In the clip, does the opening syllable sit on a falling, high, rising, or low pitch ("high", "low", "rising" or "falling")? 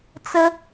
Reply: high